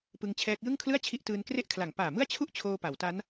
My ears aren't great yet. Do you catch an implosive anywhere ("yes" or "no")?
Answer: no